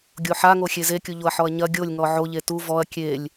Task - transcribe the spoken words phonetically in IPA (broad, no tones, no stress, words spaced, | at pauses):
ɡʲoħaŋoxʲe zekʲuʎoɐ̯ ħɔɐ̯ɲɐ ɡʲolʲŋɔ ʕoʎe tu vɔɐ̯ kʲelʲ